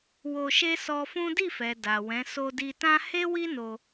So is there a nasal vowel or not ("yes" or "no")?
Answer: yes